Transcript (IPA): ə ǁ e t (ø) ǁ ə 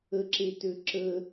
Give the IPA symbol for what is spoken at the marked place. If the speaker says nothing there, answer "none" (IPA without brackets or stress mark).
ø